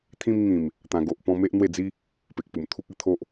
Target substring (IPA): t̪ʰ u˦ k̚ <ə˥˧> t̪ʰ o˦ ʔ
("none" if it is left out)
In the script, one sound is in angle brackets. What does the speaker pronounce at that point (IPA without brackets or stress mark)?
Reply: ə˥˧